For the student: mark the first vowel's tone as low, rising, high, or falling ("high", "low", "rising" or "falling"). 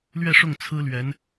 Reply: falling